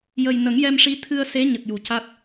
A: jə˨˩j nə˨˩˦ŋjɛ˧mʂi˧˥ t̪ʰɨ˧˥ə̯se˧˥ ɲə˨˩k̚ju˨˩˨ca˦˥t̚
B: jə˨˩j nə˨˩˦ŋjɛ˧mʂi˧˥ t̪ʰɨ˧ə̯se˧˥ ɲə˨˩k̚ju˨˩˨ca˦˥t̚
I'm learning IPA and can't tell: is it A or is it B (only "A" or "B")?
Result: B